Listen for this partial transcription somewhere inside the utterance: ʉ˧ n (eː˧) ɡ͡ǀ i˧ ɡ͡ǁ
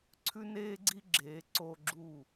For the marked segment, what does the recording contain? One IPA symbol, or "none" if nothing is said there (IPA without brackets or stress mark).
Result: eː˧